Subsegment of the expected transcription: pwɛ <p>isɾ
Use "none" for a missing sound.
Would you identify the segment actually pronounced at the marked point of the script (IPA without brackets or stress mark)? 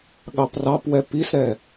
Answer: p